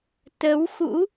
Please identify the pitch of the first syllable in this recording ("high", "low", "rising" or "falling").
rising